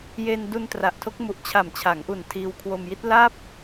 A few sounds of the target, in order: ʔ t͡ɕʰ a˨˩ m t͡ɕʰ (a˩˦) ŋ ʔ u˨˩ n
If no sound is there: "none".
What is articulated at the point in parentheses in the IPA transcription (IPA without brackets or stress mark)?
a˩˦